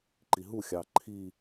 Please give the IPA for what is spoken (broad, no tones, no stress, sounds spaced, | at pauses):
ǃ i ɦ u xʲ ɑː ǃʰ i